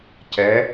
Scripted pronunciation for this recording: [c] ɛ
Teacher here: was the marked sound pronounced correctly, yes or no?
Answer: yes